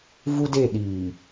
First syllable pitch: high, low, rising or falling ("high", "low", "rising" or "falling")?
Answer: high